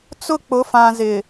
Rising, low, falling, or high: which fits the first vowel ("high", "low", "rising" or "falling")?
falling